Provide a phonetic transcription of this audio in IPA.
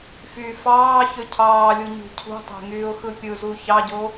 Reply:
f y f ɑː ç ø cʰ ɑː lʲ u ɲ ṳ cʰ ṳ tˤ e̤ ŋ yː ʊ̯ x ɯ pʲ ɯ z u ç ɑ ɟ o

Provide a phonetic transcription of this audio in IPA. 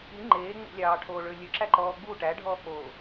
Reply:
i ŋ͡ǃ eː ŋ͡m ṵ lʲ ɑː ʈʰ oː ɭ ø lʲ ɵ ǁ æ ǃ ɔː ɡ͡b u ʈ æ ɖʱ ɔː k͡p oː

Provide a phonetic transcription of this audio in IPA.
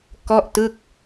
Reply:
k ɔ˥˩ ʔ t ɯ˥˩ k̚

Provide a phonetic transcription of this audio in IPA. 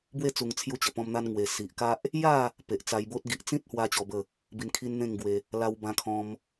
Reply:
b w e˥˧ t͡s u˧ ŋ t͡sʰ j u˧ t͡ɕ ə˨˩ p ɔ̃˧ m n̪ a˧ n ŋ w e˨˩ s i˨ ʔ k a˦ ʔ | j a˥˧ | p e˨ ʔ t͡s a˧ j b o˦ t̚ ɡ i˨ ʔ t͡s ĩ˦ t̚ h w a˦ t͡ɕ ɔ˧ b ə˥˧ | b i˧ n kʰ i˦ n n̪ ẽ˥˧ ŋ ɡ w e˧ | l a˧ w b ã˧ kʰ ɔ̃˧ m

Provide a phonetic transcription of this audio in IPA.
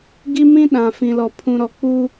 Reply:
ɡ i˦ m ĩ˦ ɗ ã˨ f ĩ˨ l ɔ˨ pʰ ũ˨ ɾ ɔ˨ k͡p u˦

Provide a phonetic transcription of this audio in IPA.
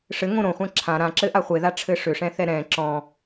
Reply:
ʂ ɘ ŋ õ ɾ õ χʷ ɛ̃ ǁʰ ã ɾ ã ǁ ɘ ʔ a χʷ e ð a ʈ͡ʂʰ ɘ ʂ ʏ ʂ ɛ̃ θ ɛ ɾ ɛ̃ ǁ ɔ̃

